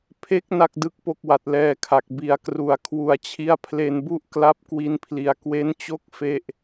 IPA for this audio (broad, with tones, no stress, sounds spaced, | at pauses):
pʰ e˦˥ k̚ n a˥˩ k̚ d ɯ˥˩ k̚ p o˥˩ k̚ w a˨˩ t̚ l ɛː˧ kʰ a˨˩ k̚ b i˨˩ a̯ k r u˨˩ a̯ kʰ w u˨˩ a̯ t͡ɕʰ i˦˥ a̯ pʰ l e˧ n b u˥˩ ʔ k l a˦˥ p̚ k w i˧ n pʰ l i˩˦ a̯ k w e˦˥ n t͡ɕ o˥˩ k̚ f e˥˩ ʔ